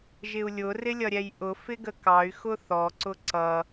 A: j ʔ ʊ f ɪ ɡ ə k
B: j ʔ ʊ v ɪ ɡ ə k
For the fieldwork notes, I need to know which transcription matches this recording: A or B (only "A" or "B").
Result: A